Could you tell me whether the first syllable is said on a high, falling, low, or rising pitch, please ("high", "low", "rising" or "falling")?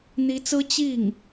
rising